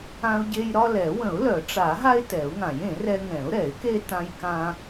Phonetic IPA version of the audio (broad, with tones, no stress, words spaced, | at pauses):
ã˦ʊ̯ɟe˦j ɾɒ˦lɛ˨˩˦ wə̃˨˩˦ʊ̯lœ˨˩˦ʈ͡ʂa˨˩˦ɦa˦ɪ̯ tɛ˨˩˦ʊ̯ŋã˨˩˦jẽ˨˩˦rɛ˦ ŋɛ̃˨˩˦ʊ̯ɾɛ˨˩˦ɪ̯ke˦ tã˦jkã˦